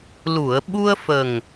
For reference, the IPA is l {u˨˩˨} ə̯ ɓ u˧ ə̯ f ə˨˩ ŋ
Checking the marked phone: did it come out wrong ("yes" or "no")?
no